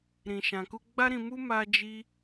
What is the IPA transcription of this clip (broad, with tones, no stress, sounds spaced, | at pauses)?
ɾ ĩ˨ ʃ ã˨ k u˧ ɡ͡b a˦ ɾ ĩ˧ m u˦ m a˦ d͡ʒ i˦